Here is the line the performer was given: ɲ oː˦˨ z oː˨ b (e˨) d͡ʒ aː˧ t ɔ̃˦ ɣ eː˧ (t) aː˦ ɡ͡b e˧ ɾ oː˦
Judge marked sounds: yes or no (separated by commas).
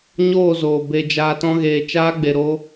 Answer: no, no